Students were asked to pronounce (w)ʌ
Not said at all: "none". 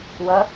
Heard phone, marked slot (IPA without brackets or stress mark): w